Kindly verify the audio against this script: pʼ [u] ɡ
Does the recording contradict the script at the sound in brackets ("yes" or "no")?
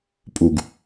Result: no